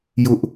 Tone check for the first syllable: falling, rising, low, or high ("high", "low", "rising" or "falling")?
high